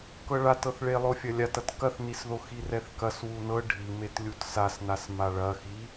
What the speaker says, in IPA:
k ɤ ɭ a t ɤ θ ɭ e lˠ o fʲ ɐ lʲ a t ɐ t k ɐ θ n i s ð o x i r ɛ θ k ɐ s w u n ɤ ɖʱ i m e t lʲ u t s a s n a s m a ɭ ɐ x i

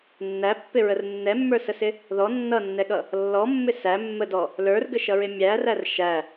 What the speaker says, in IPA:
nː æ pː ɪ ɹ ə r nː ɛ mː ə˞ s ə s ɪ | ð ɔ nː ʌ nː ɛ ɠ ʌ | lː ɔ mː ɪ s æ mː ə d ɔ | l ə˞ r ɡ ə ʃ ʌ ɹ ɪ mʲ æ r æ r ʃ æ

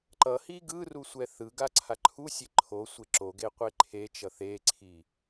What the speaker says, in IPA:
ǃ ʌ h i ɡ ɯ r u sʷ ɛ θ ɯ ɡ a ǀʰ a ǃʰ u sʲ e ǃʰ o sʷ e ǁ o ɡ e qʷ e ǃʰ e t͡ʃ ʌ θ e ǀʰ i

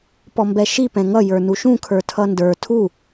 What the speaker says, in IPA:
p ɔ m b ɛ ʃ i p ɛ̃ ŋ ʌ j ə˞ n u ʃ ũ kʰ ə˞ tʰ ʌ n d ə˞ tʰ u

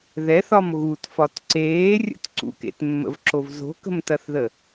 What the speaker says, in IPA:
ð ɛ θ ɒ m ɣ u t f ɒ t ǀ eː rʲ ə̰ t ǀ ṵ k ḛ t mː ə̰ v ǁ o v z o̤ k ə̤ m t ɐ θ ð ə

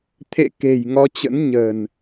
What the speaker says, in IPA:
t̪ʰ ḛ˧˨ k e̤˨˩ j ŋ ɔ˧ t͡ɕ ə̰˧˥ n ɲ ə̤˨˩ n

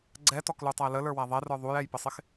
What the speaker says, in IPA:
ɡ͡ǀ ɛ t ɔ k l u tˤ æ l ə l ə˞ w æ ðˤ ɛ r ə˞ ðˤ u j ɛ j p ɪ sˤ ɪ x

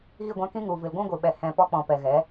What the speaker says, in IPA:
ɣ i˦˨ ɡʷ ã˧ k ĩ˦ ŋ u˨ v ɨ˨ l ɡʷ ũ˦ ɡʷ ɨ˨ ɓ ɛ˨ h ɛ̃˨ p ɔ˧ k͡p ɔ̃˨ p ɛ˨ ɣ ɛ˨˦

